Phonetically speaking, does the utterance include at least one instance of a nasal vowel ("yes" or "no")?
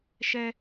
no